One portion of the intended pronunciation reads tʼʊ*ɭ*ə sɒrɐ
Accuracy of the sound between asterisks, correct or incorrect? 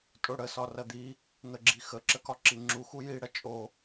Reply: incorrect: ɽ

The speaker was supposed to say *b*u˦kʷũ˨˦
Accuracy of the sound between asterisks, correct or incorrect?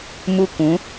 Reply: incorrect: m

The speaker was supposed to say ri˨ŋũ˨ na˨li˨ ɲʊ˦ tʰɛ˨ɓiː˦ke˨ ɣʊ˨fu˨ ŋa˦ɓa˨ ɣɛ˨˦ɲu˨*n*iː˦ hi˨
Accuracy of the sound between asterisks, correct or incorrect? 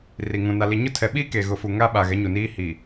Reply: correct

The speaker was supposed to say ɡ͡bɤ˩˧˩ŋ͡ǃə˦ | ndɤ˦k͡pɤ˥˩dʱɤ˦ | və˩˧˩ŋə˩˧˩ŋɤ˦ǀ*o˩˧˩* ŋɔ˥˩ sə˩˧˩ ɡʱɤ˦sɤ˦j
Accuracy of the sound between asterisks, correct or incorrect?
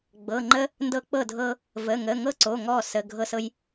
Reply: correct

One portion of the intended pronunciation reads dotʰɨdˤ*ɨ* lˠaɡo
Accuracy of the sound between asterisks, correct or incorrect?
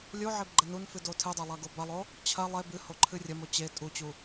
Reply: incorrect: e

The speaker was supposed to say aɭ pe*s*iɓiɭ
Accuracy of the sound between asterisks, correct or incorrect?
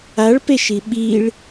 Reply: incorrect: ʃ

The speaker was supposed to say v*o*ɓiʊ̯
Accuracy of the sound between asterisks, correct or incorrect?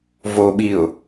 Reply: correct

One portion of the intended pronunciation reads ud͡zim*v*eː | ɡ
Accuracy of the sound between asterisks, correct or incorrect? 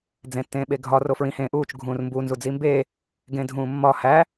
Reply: incorrect: b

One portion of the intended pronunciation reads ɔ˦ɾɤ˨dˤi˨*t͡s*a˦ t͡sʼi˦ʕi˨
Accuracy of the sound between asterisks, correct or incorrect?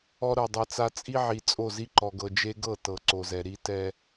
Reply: correct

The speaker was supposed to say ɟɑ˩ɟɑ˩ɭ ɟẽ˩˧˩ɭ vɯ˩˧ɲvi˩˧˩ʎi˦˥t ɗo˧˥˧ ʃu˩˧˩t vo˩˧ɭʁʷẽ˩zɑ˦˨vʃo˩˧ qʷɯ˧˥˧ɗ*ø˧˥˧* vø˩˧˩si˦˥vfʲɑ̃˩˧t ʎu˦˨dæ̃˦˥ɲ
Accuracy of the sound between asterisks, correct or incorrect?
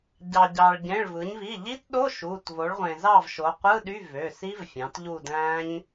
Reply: incorrect: y˧˥˧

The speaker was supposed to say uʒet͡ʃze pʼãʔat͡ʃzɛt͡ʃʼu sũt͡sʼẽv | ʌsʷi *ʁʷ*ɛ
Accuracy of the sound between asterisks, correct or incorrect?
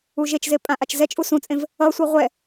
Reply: correct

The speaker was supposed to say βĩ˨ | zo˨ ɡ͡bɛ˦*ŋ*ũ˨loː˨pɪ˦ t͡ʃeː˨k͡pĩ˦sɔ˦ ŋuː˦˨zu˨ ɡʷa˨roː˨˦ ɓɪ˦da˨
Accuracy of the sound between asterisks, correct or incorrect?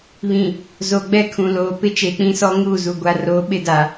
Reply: incorrect: kʰ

